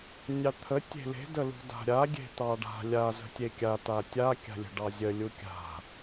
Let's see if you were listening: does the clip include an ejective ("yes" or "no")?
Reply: no